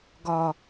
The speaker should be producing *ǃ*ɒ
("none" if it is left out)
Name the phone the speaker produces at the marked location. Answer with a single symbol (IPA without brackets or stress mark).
ɡ